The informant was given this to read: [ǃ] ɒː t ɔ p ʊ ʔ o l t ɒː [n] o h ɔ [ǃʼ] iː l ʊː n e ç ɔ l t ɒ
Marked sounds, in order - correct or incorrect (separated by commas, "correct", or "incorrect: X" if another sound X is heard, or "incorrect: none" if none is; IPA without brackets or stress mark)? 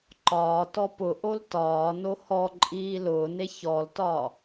correct, correct, correct